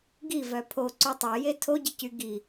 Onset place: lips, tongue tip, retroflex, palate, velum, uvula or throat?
velum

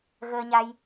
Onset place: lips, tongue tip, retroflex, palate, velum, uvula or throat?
velum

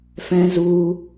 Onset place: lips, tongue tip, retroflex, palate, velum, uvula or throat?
lips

